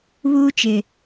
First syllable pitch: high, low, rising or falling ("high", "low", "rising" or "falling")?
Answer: high